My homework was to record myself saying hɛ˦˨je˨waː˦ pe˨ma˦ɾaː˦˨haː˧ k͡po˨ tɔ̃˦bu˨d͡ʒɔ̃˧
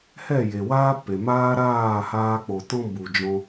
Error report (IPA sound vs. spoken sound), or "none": a˦ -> aː˦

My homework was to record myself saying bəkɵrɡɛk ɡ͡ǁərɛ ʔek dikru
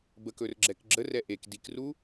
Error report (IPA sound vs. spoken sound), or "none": ɡ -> ɡ͡ǁ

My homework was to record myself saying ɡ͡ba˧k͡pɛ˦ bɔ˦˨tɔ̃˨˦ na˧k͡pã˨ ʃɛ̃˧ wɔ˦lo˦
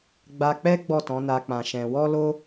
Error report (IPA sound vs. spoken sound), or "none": b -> ɡ͡b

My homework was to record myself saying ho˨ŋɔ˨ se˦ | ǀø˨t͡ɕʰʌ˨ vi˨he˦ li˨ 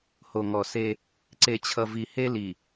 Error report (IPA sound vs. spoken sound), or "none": ø˨ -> e˨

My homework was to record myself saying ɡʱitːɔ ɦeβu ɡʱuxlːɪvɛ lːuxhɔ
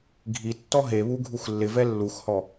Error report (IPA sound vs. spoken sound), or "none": none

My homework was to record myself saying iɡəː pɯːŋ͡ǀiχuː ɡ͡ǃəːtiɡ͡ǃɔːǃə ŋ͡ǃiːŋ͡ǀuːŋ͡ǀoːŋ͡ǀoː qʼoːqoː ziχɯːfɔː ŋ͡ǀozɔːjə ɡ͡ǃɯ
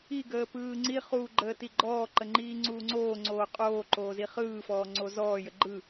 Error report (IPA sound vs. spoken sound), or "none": q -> ǃ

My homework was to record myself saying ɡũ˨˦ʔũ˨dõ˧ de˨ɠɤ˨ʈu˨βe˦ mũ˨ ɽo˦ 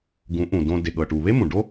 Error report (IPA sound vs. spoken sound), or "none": ɽ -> ɖ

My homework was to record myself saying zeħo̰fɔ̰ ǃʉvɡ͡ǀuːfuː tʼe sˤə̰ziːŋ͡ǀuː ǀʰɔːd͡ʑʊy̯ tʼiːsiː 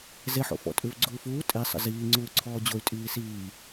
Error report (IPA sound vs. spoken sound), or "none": ǃ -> tʼ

